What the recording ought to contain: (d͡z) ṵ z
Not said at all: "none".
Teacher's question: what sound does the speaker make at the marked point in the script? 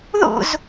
ð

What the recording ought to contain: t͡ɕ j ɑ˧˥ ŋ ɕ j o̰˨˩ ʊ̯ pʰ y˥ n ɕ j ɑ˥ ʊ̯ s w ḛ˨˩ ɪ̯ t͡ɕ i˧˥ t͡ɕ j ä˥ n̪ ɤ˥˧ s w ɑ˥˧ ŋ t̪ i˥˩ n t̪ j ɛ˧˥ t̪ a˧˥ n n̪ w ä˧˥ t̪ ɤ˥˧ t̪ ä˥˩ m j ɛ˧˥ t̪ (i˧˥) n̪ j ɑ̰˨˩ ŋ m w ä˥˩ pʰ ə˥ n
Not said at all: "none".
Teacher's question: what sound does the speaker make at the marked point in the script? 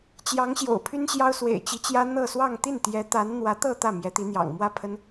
i˧˥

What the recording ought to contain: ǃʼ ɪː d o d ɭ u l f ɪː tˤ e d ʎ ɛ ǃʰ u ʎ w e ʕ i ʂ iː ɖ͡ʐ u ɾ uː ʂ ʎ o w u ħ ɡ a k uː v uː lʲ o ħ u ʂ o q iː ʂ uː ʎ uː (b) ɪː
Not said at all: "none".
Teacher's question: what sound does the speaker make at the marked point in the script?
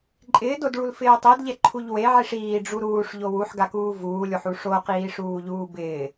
b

